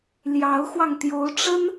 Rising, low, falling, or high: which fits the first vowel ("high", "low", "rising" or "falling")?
rising